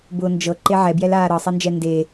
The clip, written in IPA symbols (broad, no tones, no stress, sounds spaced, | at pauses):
b ʊː n d͡ʒ ɤ ǃ e ʕ ɛ b j ɛ l aː ɾ ɤ sˤ ɛ n d͡ʒ ɛ n d e